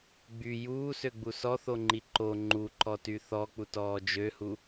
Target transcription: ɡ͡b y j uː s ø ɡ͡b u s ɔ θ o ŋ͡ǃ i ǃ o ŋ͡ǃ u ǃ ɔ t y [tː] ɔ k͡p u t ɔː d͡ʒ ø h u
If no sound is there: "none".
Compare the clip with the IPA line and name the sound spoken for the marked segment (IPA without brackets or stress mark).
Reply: θ